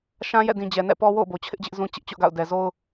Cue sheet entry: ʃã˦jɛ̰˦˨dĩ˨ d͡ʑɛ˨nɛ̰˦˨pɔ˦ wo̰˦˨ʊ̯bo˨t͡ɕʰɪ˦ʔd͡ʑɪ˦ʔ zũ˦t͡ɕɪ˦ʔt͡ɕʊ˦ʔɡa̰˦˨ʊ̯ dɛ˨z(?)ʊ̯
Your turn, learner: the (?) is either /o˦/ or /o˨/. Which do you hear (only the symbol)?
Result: o˦